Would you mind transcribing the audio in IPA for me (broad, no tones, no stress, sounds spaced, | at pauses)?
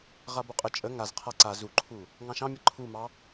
ʁ a b o qʼ ə t͡ʃʼ ə ŋ a z qʰ a ǀ a z u ǃʰ u | ŋ ɑ̃ ʃ ɑ̃ mʲ ə ǃʰ u m ɑ